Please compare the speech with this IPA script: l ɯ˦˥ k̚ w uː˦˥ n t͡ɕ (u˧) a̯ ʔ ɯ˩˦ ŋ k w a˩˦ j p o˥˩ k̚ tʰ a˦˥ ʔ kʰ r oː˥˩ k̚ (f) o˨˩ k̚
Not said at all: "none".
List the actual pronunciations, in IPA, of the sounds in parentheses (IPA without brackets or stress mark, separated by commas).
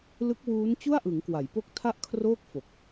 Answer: u˥˩, f